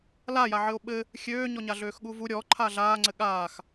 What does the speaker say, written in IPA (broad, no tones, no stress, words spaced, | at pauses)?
lajaʕɘo̯ ɓɘ | xʲøːɲɔɲa ɮøːxɠuvu ɾʲɔǃʰa ɮaːŋ͡ǀɘ ɠaːx